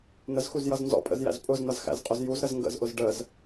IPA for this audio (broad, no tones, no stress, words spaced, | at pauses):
n̪əzxuzjʌz nzɔ̰pʼə̰zjæ̰z pʼʊzn̪ʌzxæ̰zqʼʊz juzɾəz ŋɡə̰zʔʊz ɖəz